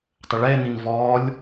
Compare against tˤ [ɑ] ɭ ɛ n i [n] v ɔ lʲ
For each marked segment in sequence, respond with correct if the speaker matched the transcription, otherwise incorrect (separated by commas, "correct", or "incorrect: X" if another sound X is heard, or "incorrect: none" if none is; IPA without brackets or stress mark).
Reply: incorrect: ə, correct